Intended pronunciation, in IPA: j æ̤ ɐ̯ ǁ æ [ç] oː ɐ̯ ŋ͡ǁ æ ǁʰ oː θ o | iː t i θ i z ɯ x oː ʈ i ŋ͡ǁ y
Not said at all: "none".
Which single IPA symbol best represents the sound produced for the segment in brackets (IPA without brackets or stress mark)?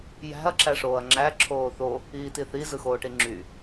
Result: ʂ